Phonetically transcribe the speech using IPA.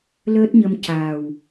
l əː˦˥ t̚ ɲ ə˧ m c a˨˩ w

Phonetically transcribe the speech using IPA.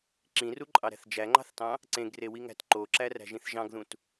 ǁ ĩ r u ǃʼ ɑ ɾ æ̤ θ d͡ʒ æ ŋ͡ǃ ɑ̤ θ t ɑ̃ | ǀ ẽ ɡ r e w i ŋ æ̤ t ǃ o ǁ æ r æ̤ ʒ ĩ θ ʒ ɑ̃ ɡ ð ũ t

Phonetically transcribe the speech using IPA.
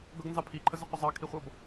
ɡ ʌ ɡ n z ɑ pʰ i ǃʰ ə z ə qʷ ʌ zˤ ɑ kʰ i χʷ ʌ b

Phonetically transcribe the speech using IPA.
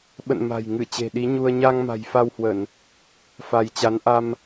ɓ ə̰˧˨ n m a̤˨˩ j ŋ ɨ˧˩ t͡ɕ e̤˨˩ ɗ i˨˦ ɲ u˧ ə̯ ɲ a˧ ŋ m a̤˨˩ j f a˧ w h w ə˧˩˨ n | f a˧ j t͡ɕ a˨˦ n ʔ a˧ m

